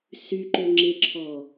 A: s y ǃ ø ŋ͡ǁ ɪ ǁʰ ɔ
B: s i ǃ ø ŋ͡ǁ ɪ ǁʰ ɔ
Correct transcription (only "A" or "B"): A